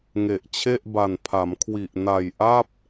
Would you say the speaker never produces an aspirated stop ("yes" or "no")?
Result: no